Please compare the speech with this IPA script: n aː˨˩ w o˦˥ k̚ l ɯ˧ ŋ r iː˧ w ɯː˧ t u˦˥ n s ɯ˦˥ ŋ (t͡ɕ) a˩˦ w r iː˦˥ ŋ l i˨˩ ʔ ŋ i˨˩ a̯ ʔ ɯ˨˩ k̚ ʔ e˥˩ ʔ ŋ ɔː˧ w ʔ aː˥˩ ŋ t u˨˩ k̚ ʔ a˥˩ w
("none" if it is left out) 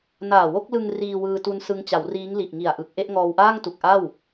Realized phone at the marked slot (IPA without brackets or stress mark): t͡ɕ